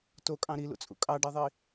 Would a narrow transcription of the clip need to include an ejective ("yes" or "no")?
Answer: yes